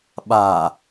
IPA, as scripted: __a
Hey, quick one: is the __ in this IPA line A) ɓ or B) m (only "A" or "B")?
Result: A